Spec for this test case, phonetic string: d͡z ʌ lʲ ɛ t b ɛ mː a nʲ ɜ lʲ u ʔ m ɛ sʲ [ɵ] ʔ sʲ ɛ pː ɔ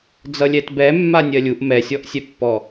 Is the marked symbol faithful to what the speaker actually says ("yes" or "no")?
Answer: no